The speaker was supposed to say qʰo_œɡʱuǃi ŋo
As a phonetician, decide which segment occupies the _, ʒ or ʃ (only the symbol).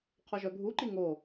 ʒ